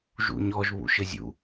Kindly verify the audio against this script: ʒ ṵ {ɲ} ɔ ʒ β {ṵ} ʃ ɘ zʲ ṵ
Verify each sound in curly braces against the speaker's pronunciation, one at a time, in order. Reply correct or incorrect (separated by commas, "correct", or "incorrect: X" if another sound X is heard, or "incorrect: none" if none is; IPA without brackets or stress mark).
correct, correct